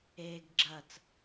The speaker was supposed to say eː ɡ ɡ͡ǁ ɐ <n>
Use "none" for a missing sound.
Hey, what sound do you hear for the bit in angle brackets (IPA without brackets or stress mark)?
t͡s